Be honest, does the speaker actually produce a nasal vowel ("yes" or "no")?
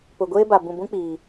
yes